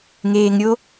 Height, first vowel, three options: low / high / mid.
mid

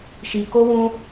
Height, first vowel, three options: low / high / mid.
high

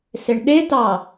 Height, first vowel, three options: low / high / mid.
mid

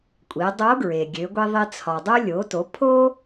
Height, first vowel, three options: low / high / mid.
high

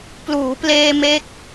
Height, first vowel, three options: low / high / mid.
high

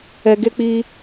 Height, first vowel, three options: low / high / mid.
mid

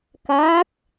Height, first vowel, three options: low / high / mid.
low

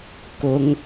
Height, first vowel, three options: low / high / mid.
high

